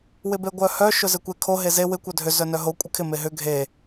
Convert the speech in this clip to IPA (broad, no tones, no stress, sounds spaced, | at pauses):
w ɪ b e ɡʷ œ h œ ʃ ʊ z ɪ kʷ e kʰ o ɦ e z e w ɪ kʷ œ dʱ ʏ z œ n œ ɦ o kʷʼ ɪ kʰ ɪ m e ɦ ʏ ɡʱ e